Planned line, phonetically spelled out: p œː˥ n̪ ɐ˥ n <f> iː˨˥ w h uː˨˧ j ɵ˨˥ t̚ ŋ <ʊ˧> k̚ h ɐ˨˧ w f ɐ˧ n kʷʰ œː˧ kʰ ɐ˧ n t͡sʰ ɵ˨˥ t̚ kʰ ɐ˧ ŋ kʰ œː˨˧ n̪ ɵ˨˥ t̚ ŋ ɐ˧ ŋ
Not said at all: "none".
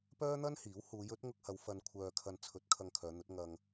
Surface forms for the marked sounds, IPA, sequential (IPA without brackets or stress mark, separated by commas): h, ʊ˧